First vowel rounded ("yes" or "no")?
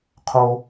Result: yes